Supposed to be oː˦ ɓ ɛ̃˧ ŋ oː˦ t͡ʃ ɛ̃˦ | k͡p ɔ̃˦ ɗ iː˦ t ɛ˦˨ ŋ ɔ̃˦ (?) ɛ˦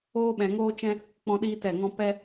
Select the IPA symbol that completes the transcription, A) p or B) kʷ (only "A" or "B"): A